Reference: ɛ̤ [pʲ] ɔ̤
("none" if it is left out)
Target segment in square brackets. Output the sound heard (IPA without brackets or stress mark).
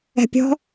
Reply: pʲ